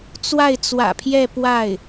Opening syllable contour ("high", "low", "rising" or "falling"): falling